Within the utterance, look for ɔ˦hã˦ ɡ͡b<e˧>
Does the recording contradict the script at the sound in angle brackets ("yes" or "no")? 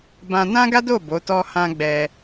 yes